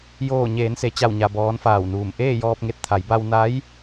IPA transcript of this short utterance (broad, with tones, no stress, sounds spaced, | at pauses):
j oː˧˩ ɲ eː˩˧ n s e˩˧ t͡ɕ a˧˩ w ɲ a˩ b ɔː˩˧ n f aː˧˩ w n uː˧˩ m ʔ eː˥˨ j ɔː˧ p̚ ŋ e˧ t̚ t̪ʰ a˩˧ j b a˧ w n a˧˥ j